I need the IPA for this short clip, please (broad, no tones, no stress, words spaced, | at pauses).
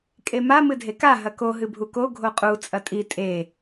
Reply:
kʼema mɨdʱeka ɦɐko ɦɨbʱuko ɡʱoqʼu t͡sʼɐtʼi tʼe